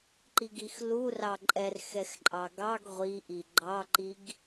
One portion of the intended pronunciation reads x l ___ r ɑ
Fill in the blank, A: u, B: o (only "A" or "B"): A